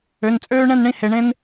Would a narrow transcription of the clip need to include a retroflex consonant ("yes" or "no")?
yes